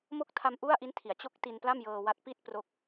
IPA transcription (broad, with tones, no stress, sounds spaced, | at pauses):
m o˦˥ k̚ tʰ a˧ m ʔ u˥˩ a̯ ʔ i˦˥ n tʰ i˩˦ a̯ t͡ɕ o˥˩ k̚ t i˧ n p l a˥˩ m j ɤː˧ w a˦˥ t̚ p i˥˩ t̚ p r o˦˥ k̚